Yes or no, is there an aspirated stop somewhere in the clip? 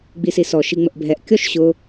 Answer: no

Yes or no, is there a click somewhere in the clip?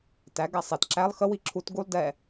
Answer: yes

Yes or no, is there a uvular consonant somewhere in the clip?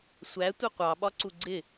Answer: yes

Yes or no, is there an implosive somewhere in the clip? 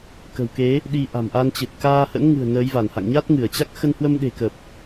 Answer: yes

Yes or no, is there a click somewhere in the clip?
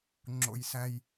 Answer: yes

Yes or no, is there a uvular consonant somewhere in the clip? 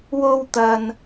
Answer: no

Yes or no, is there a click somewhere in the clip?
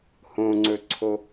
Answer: yes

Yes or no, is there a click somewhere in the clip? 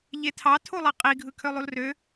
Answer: no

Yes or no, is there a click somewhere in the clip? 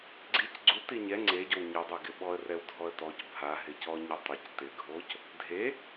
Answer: yes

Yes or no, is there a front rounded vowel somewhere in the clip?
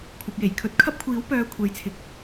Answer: yes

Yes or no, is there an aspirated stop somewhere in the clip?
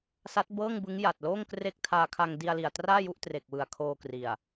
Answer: yes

